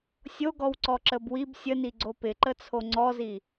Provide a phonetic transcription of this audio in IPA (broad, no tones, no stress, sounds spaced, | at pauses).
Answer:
sʲ o ɡ ɔ w ǀ ɔ ǁ ə b w i b sʲ ə n i ɡ͡ǀ o p ɪ ǃ ə t͡sʰ o ŋ͡ǀ ɔ z i